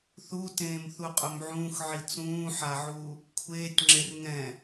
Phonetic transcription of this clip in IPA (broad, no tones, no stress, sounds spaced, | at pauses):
θ u t ẽː m θ u qʼ ʊ m ʕ ũː x ʕ i t͡s ũː ħ a ʕ uː | kʷʰ eː tʲ ŋ͡ǁ e r ŋ ɛ̃